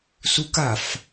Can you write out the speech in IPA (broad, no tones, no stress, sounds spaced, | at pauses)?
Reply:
s u k a f